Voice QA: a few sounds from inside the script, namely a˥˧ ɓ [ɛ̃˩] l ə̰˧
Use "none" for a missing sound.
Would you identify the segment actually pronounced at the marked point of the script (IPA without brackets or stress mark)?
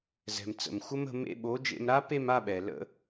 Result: ɛ˩